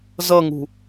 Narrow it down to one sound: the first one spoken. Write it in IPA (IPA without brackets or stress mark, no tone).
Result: z